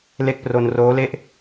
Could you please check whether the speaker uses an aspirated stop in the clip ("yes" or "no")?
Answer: no